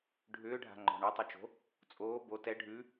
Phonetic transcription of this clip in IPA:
ɖʱʏːɖʱa̤ŋ͡ǃɔ̤ ɳʉtˤʏt͡ʃo̤ | t͡sʼoː bo tɛ ɖʱʉ

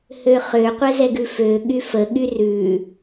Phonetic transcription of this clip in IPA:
høχø qʷəzɛɡʉfø ɠyfə ɠyrʉ

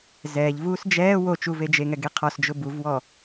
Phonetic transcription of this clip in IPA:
zɛːʎvuːs d͡ʒɛː wo t͡ʃuved͡ʒeŋɛ ɡeqʰɔsd͡ʒʊ buvwɔ

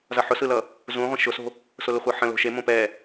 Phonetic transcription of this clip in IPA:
zʌħʊsɯlʌ | zũ ʁʷə̃ʃʊso̤ | sʊlʊχʷɤħə̃ lo̤ʃe mõpɛ

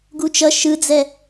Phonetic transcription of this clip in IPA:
ɡut͡ʃʌ ʃɯd͡zɛ

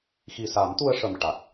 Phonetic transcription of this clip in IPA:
xi˨˩sa˨˩˦mt̪u˧ə̯ʂə˨˩m ʈa˨˩k̚

